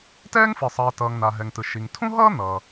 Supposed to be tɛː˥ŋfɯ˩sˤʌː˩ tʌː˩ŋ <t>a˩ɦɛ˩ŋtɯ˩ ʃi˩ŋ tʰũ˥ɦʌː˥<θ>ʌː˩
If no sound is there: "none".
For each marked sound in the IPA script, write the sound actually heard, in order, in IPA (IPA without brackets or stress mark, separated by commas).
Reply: n̪, n̪